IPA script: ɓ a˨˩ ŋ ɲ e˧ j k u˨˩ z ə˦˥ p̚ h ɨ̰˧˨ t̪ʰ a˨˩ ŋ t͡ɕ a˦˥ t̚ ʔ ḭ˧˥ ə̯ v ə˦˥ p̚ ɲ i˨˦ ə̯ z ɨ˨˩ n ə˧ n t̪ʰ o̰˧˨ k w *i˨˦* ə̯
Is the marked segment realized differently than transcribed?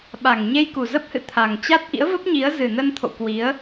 no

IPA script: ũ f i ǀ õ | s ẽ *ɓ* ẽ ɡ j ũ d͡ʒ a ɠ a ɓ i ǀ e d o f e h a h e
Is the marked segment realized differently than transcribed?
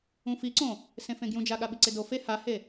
yes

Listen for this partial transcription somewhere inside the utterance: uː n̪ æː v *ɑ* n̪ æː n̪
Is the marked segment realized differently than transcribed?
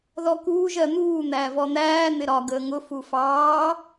yes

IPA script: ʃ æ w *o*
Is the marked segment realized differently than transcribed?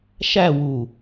yes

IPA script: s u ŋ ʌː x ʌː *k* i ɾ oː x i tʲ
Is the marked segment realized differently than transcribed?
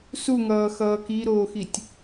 no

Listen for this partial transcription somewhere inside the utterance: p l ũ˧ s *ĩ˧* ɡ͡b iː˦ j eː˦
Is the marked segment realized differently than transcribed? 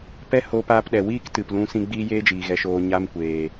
no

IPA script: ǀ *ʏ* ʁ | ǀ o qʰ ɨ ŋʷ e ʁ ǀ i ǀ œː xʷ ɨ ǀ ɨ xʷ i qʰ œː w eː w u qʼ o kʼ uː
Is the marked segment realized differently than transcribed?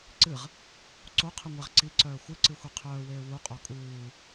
yes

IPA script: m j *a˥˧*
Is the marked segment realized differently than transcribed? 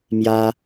yes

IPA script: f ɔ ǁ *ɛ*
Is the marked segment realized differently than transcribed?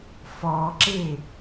yes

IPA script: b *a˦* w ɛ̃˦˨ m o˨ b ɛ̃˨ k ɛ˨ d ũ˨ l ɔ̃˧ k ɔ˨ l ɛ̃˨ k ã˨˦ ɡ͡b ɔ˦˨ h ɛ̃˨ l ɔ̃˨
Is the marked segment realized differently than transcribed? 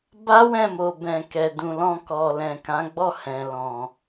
no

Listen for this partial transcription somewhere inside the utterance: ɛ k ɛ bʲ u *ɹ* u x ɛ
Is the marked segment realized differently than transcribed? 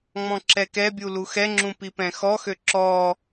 yes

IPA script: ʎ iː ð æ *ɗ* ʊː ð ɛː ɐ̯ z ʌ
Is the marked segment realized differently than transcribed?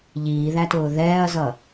yes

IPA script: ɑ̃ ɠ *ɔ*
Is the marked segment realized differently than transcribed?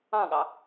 yes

